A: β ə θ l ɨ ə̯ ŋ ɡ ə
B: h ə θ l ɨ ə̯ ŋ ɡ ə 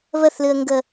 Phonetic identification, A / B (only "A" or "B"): A